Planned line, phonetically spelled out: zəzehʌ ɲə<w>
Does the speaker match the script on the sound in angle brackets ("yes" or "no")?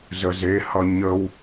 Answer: yes